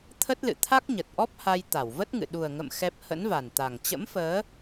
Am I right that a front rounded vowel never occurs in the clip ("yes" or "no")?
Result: yes